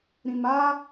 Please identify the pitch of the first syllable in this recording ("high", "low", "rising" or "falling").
low